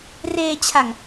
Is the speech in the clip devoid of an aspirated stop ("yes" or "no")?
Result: no